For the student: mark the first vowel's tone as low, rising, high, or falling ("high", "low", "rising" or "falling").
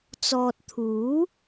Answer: low